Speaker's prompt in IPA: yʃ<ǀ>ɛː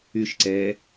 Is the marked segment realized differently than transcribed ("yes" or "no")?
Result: no